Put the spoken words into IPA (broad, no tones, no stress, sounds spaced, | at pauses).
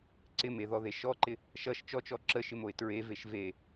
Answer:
ǀ ɪ m e ð ɔ ð e ʃ ɔ ǃ ɪ | ʃ ʌ ʃ t͡ʃ ɔ t͡ʃ ɔ ǁ ə ʃ ɪ m o ɪ̯ t ɹ e v e ʃ v e